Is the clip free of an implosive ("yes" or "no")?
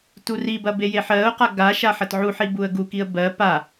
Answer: yes